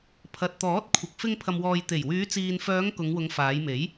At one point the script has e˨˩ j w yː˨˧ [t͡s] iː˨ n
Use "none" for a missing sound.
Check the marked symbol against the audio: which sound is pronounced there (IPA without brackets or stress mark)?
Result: t͡s